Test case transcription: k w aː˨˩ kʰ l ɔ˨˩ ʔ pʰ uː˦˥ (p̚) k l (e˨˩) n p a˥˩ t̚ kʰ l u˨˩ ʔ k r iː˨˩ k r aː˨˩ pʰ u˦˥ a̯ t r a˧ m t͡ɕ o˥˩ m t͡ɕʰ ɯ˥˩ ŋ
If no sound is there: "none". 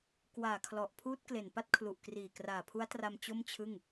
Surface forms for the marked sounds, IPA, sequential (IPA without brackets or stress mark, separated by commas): t̚, e˨˩